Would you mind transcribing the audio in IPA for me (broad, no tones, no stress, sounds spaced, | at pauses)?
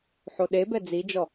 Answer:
ħ o ɗ e b ɛ d͡z i d͡ʒ ɔ